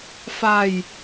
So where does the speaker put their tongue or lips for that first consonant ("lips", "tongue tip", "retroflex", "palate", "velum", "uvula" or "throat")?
lips